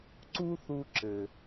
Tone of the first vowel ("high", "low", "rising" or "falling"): high